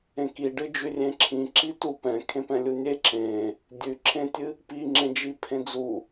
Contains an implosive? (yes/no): no